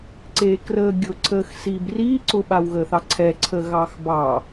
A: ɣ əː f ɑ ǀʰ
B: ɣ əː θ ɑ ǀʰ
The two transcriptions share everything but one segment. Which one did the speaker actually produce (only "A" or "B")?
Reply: B